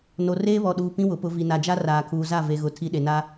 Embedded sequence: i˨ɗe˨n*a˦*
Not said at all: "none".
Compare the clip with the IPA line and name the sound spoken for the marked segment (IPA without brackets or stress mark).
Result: a˦